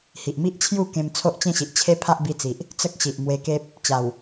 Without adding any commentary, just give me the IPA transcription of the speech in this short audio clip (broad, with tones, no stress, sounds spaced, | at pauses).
h i˨ ʔ m i˦ ʔ t͡ɕʰ j u˥˧ k ẽ˧ m t͡sʰ o˦ ʔ t͡ɕ ẽ˥˧ ɕ i˨ ʔ t͡ɕʰ e˦ pʰ a˦ ʔ b i˧ t͡s i˨ ʔ | t͡s ə˦ k̚ ɕ i˨ ʔ m w e˧ k e˦ p̚ | t͡ɕ a˨˩ w